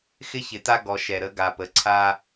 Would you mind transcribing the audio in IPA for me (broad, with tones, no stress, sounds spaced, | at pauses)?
x ɪ˦ ç ɪ˨ t a˦ ɡ ɔ˨ ʃ ɛ˨ ɾ ə˨˦ ɡ a˨ p ə˨ ǀʰ a˦